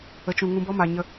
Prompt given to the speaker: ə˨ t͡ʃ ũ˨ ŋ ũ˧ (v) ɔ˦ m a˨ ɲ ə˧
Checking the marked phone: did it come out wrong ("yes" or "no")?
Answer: yes